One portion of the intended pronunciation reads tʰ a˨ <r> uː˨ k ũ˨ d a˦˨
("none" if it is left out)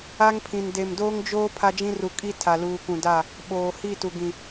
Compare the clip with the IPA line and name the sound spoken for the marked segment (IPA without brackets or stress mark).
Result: l